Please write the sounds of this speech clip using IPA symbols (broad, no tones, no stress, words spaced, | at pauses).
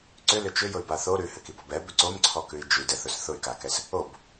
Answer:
ǀʏlʏ t͡ʃʏjʊy̯ba θo ɾʉhɘkibɔb ɛbʏ ǀomǀʰɔkʉi̯ d͡ʒʉdɛθʊs θʊy̯kakɛs | ob